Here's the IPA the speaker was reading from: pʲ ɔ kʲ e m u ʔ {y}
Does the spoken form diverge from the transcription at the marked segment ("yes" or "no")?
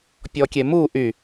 no